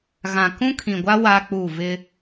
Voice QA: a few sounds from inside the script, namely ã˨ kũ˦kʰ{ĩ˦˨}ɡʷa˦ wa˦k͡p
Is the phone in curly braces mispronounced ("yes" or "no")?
yes